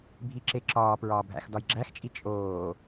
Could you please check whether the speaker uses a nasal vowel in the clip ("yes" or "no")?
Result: no